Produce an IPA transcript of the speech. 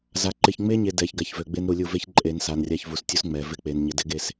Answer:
za˨ ǃɪ˨çŋ͡me˦ɲe˨ dɛ˨ç ɡa˨çvø˨ɡ͡be˦n ɾu˨lʲu˦˨ ve˦çǃʼe˨n sa˨nrʲa˦ç vu˨stʲu˦s ŋ͡mɛ˨ vɪ˦k͡pe˨n ɲɪ˨dɪ˦ɡe˨s

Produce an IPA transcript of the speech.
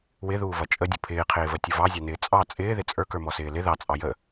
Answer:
wɪðuːvʌ t͡ʃʼədʲʊ pʰɪːqʰɪːvətʲʊ vɑzʲɑnɪː t͡sʼɑ t͡sʼɪːðɪ t͡sʼə˞kə˞mɔsɪː lɪ ðɑt͡sʼɑ jə

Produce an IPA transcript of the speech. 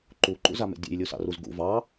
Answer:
ǃuǃṵzamḛ dʲḛjlʲusɑ̰ruz ɡṵ vɑ

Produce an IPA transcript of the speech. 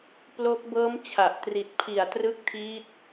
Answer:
plo˦˥k̚ bɤː˦˥mt͡ɕʰa˨˩ʔtri˨˩t̚pʰi˨˩a̯ trɯ˦˥k̚tʰiː˦˥t̚

